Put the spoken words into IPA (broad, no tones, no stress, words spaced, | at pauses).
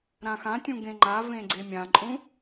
ɾãxãtʲũ ɡẽŋ͡ǃa vẽɡ͡ǀemʲãǃʼũ